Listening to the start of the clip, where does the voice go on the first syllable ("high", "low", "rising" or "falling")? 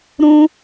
high